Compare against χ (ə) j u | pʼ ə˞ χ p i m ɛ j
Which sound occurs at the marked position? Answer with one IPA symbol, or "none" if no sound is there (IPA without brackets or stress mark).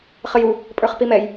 ə